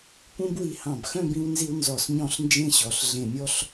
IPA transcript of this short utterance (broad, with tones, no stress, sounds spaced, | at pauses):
p ũ˥ b w i˧ h ɑ̃˧˩ b x œ̃˥˧ b ĩ˧ w n z i˧ w n z ɔ˧˩ s ɲ ɔ̃˥˧ ɬ n d͡ʒ ẽ˥ ɕ ɔ˩˧ ɬ ɮ ẽ˧˩ mʲ ɔ˥˧ ɬ